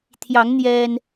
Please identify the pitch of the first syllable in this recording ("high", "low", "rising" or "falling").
rising